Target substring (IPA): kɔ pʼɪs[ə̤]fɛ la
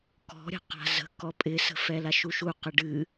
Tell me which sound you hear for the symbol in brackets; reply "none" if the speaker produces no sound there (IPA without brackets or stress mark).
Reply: ə̤